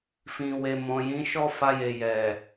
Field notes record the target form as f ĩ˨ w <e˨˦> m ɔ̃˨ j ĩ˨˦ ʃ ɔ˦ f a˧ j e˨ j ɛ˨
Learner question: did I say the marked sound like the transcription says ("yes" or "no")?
no